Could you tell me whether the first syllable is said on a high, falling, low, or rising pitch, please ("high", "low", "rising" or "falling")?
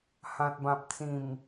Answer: low